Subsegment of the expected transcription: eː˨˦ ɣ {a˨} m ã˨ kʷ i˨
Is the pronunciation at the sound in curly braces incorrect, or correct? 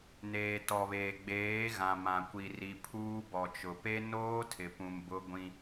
incorrect